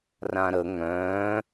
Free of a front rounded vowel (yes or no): no